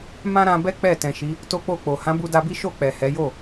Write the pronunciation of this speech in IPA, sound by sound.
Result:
m ã˦ ɾ ã˧ b ɛ˦ k͡p ɛ˦˨ t ɛ̃˨ ʃ i˨˦ | t o˦ k͡p o˦˨ k͡p o˨ h ã˨˦ b u˧ d a˧ b i˦ ʃ o˦˨ k͡p ɛ˨ h ɛ˨˦ j o˦˨

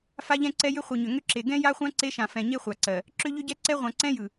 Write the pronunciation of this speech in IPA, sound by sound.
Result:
f a˦ ʎ ɛ̃˦ ǀ ɛ˦ j ʏ˦ χʷ ɯ˨ ɲ ʏ˨ ŋ ʏ˦ ǁ e˨ ɡ ɛ̃˦ j a˦ χʷ ã˦ ǀ e˦ ʃ ã˨ f ɛ̃˨ ɲ e˦ χʷ a˨ ǀ ɜ˨ | ǁ ʏ˦ ʎ ʏ˦ ɟ ɛ˦ ǀ ɛ˦ ʁʷ ã˨ ǀ ɛ̃˦ j ɯ˨

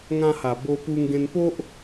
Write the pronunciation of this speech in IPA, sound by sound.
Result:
ŋ ã˧ h a˨˩ b o˧ p u˧ ŋ ɡ ẽ˧ n p o˦ ʔ

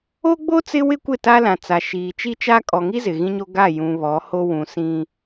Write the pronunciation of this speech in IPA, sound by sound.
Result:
o˦ ɡ͡b o˦ t͡s ɪ˦ w ɪ˦ kʷ ɪ˦˨ t a˦ l ã˨ t͡s a˨ ʃ iː˨ t͡ʃ i˦ t͡ʃ a˦ kʼ ɔ˨ ŋ i˦ z ɪ˨ ɣ ĩ˦ ɲ o˦ ɡ a˦˨ j ũ˨ β ɔ˨˦ h o˦ w ũ˨ s ĩ˦

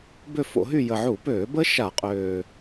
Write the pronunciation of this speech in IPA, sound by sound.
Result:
b ø˦˨ f o̰˧˩˧ ɦ y˦˨ j ə˨˩ ʕ u˧˩˧ p øː˧˩˧ b ə˦˥ ʃ a˧˩˧ qʼ øː˨˩

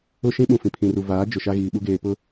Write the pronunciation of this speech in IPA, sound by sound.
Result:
ʊ˦ ʃ ĩ˦ ɓ ũ˨ f ĩ˨ pʰ ĩ˨ r u˨ v aː˨˦ d͡ʒ ʊ˨ ʃ a˦ ɣ iː˨ ɓ u˦ ɡ eː˨ p ʊ˦

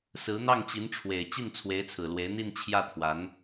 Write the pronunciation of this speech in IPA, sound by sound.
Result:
s ɹ̩˧˥ n̪ ɑ˥˩ ŋ t͡ɕ i˧˥ n ʈ͡ʂʰ w e˨˩ ɪ̯ t͡ɕ i˥˩ n t͡sʰ w e˧˥ ɪ̯ t͡sʰ ɹ̩˨˩ l w e˧˥ ɪ̯ n̪ i˥˧ n t͡ɕʰ j ä˥˩ t̪ʰ w a˧˥ n

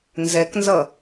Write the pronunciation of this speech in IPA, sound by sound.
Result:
n z ɛ k n z ʌ

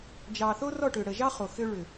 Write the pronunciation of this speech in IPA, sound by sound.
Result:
d͡ʒ ɑ˨ θ o˦ r ɔ˦˨ ʈ ʏ˨ ɽ ə˨ ʒ ɑ˦ χ o˨ x ʏ˦ ɭ ʏ˨

